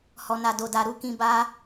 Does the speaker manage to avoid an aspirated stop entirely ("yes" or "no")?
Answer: yes